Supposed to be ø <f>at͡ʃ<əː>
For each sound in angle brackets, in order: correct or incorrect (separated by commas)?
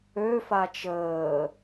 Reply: correct, correct